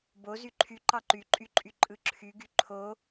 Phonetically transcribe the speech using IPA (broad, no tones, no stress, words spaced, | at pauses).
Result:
bo zyǃʰy ǃɑǃyǃʼyǃʼy ǃʼɯǁʰyɡy ǃʰo